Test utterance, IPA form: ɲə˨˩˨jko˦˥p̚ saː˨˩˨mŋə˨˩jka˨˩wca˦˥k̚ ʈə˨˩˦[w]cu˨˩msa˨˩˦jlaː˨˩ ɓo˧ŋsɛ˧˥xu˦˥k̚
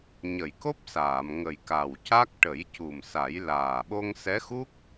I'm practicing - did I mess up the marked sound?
yes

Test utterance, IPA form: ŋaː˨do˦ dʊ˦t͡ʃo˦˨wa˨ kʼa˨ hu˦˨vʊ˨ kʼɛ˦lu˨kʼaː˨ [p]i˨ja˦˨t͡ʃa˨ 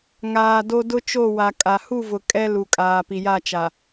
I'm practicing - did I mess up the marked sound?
no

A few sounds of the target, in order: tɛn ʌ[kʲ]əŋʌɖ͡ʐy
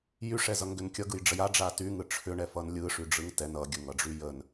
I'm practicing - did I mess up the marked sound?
yes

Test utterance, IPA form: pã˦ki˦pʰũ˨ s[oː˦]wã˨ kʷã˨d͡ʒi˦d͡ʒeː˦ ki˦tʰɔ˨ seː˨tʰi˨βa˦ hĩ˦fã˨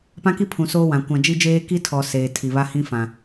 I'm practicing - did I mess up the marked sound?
no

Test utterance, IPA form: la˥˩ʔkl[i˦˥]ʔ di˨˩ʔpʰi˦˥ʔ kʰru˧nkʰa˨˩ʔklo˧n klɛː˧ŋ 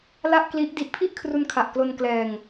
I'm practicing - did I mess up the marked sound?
no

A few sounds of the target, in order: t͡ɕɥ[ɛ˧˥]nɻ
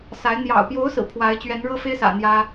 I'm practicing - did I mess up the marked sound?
no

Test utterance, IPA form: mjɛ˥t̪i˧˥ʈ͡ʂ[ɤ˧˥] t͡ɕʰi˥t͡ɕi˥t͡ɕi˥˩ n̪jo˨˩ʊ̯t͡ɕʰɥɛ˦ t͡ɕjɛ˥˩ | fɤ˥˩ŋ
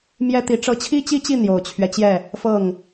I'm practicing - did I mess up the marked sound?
yes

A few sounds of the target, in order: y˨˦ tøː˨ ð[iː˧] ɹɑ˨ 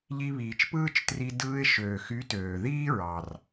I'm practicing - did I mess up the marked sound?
yes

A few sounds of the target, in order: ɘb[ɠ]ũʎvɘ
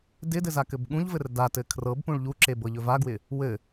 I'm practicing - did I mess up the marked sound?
no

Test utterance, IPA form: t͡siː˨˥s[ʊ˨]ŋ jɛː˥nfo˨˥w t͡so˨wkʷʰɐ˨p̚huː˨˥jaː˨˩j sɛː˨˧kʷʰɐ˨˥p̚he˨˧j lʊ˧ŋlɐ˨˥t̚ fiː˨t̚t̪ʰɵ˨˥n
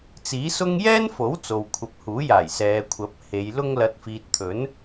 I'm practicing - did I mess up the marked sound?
yes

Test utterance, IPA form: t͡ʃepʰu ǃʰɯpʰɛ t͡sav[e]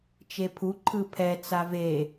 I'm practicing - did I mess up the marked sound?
no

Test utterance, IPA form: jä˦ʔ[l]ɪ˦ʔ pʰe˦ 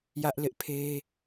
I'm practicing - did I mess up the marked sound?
no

